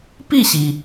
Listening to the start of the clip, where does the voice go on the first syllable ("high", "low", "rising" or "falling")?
falling